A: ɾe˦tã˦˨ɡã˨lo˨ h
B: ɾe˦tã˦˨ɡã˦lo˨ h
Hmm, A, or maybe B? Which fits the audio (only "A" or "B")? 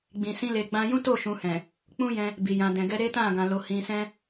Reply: A